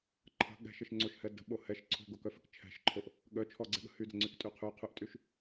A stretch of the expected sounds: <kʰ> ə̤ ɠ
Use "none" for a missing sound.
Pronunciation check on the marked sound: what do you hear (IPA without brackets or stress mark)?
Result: ǃʰ